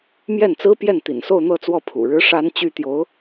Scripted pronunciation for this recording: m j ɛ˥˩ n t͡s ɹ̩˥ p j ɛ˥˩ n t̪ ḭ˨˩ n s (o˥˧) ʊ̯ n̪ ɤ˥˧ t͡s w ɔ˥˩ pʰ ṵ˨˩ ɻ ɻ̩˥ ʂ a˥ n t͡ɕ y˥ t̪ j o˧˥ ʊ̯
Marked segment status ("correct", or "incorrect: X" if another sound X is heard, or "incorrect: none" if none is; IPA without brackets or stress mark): correct